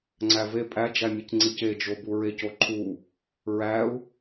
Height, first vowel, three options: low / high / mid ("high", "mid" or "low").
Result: low